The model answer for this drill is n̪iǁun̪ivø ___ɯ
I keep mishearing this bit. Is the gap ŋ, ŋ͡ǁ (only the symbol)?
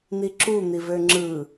ŋ͡ǁ